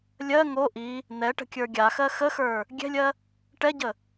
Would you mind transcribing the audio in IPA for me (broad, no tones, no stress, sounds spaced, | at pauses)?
lʲ ɜ ŋ o ʔ i | n̪ ɛ ʈ ə̤ kʲ ə˞ ɡʲ a x ɜ x ə x ə˞ | ɡʲ ɛ̤ lʲ ɜ | ʈ ɛ ɟ ə